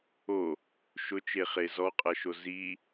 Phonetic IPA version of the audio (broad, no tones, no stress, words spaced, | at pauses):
o | ʃʊt͡ʃeχe zɔqʼɐʃo zi